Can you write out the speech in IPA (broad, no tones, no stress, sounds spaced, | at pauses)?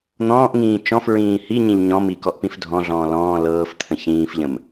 n̪ ɔ̃ː ʔ ŋ ĩː t͡ʃ ɔ̃ f ɹ ĩː h i ɲ ĩ ʎ ɲ ɔ̃ m i k ɔ ʔ p ĩ f dʱ ɔ̃ ɮ ɔ̃ː l ɔ̃ː l ɤː f t̪ʰ ə̃ ç ĩː f ʎ ə̃ m